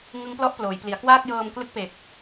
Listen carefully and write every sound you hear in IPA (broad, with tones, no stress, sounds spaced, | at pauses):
ŋ ɯ˦˥ ŋ p l ɔ˥˩ ʔ p l oː˩˦ j p l i˩˦ a̯ k w aː˥˩ k̚ j ɤː˧ m k l ɯ˥˩ k̚ p e˨˩ k̚